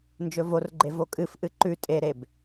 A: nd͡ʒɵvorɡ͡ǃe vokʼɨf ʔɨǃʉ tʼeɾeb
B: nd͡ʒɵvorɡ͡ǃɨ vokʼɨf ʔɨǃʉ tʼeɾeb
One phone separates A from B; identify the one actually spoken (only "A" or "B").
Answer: A